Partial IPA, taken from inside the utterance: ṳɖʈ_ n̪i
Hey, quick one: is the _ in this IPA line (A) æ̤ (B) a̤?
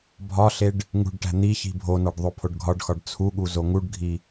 A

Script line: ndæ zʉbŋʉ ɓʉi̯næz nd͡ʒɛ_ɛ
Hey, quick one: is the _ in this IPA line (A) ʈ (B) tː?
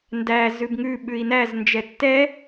B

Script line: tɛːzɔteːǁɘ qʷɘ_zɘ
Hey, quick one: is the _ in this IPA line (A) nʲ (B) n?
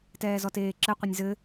A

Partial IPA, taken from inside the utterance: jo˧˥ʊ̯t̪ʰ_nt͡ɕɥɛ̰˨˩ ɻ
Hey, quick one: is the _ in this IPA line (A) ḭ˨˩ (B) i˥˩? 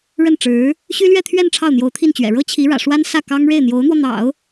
B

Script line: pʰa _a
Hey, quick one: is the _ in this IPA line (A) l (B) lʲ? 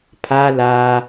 A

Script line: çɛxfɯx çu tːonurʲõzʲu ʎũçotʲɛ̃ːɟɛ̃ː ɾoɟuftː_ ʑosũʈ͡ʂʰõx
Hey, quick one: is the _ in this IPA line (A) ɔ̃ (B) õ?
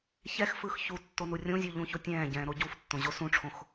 B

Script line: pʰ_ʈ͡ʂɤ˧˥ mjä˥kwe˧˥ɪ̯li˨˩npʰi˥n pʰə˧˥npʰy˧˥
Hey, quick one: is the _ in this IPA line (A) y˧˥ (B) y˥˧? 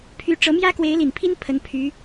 A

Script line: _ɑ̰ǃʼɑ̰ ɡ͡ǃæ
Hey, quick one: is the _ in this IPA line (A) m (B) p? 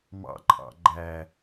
A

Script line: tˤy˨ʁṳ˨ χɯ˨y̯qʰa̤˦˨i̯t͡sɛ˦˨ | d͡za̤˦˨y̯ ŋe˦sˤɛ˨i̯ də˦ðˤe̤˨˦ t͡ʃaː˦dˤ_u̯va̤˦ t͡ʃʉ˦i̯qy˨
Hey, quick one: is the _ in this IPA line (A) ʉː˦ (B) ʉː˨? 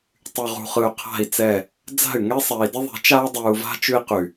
B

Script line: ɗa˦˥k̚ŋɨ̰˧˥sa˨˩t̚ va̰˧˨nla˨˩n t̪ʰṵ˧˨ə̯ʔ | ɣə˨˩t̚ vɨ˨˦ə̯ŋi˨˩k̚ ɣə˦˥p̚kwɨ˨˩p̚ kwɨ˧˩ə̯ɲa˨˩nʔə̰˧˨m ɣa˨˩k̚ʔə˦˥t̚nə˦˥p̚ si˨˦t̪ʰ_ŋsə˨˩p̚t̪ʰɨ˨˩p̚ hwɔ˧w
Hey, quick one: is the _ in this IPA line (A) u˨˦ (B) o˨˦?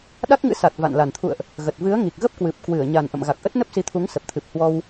A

